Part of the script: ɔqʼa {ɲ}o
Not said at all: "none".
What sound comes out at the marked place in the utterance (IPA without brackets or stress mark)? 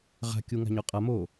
m